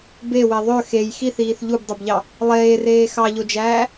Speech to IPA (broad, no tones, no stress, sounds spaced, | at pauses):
b e w e ðˤ ø x e j x i θ iː θ ʎ u b dˤ ø b ʎ ɑ | lˠ eː r eː x ɑ ʎ o d͡ʒ æː